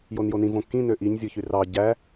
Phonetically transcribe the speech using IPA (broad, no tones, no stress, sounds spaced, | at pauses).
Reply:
j o n j o n ĩ v õ kː ĩ n ø ʔ i ɲ zʲ ɯ ç y r ɑ ɟ æ